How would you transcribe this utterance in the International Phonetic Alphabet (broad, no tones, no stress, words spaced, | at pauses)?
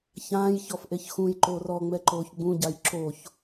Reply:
çãːj çɔfʔeçxũjǃoːr ɔŋ͡mɛ ǃoːçɡ͡bũɟaj ǁoç